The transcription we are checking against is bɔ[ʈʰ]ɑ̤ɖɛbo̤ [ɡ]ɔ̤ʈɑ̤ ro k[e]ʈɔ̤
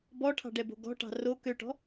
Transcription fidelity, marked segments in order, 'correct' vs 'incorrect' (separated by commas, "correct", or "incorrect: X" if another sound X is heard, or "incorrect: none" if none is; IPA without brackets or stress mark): correct, correct, incorrect: ø